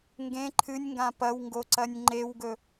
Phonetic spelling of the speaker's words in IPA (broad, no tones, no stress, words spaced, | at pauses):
ŋɡẽ ǃʰɨnʲŋɡã pɐwŋɡoǀɐnʲ ŋ͡ǃewɡɵ